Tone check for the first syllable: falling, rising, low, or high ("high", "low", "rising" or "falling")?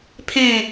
falling